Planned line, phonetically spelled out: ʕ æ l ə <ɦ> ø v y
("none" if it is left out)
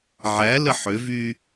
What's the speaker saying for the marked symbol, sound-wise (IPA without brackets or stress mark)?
ħ